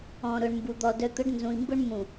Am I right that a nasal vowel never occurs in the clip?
no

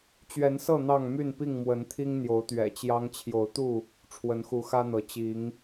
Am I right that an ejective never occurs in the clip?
yes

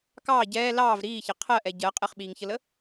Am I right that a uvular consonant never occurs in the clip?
no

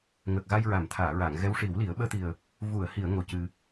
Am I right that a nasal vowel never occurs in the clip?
yes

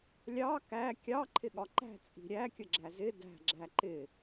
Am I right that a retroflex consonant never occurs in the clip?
yes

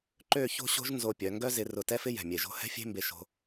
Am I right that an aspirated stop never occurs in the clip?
yes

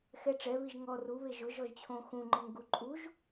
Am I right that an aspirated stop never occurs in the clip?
no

